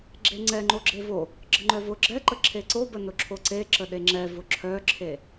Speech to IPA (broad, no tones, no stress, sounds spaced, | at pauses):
ɡ͡ǁ e ŋ͡ǀ ɛ ŋ͡ǃ o ɡ͡ǁ e v o | ɡ͡ǁ ə ŋ͡ǃ œ v ʊ ɡ͡ǁ ɛ ǃ ə ǁʰ e ǀ o b ə n ʊ ǁʰ o ǀ e ǁ ə ɗ e ŋ͡ǁ ɛ v ʊ ǁʰ œ ǁʰ e